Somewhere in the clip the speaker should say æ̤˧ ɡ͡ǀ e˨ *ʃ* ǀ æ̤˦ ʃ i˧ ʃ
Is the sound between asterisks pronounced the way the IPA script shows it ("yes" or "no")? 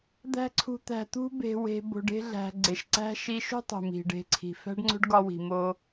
yes